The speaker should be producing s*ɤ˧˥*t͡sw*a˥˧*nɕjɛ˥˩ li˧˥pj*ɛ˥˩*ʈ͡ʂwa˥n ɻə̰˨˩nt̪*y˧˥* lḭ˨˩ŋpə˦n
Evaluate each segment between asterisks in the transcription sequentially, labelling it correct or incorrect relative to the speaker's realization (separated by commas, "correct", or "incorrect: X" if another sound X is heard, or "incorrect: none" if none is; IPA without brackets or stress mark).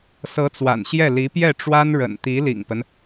correct, incorrect: a̰˨˩, correct, incorrect: i˧˥